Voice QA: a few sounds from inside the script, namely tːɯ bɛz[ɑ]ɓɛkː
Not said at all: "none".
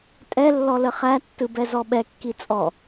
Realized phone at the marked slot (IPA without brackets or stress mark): ɔ